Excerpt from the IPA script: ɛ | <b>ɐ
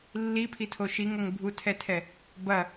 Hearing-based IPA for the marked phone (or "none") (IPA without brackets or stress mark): b